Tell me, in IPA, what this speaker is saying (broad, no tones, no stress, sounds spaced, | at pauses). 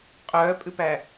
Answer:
qʼ œː pʼ ʉ p æ